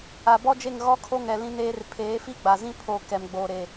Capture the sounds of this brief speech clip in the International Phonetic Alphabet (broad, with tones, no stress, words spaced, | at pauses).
a˨bɔ˦d͡ʒe˦˨ŋ ɣɔ˦kʰo˦ŋɛ˨ lĩ˦neː˦r pʰeː˨˦fi˦ɡ͡ba˨zĩ˦ pʰo˨ kɛ˨mɡ͡boː˨ ɾe˨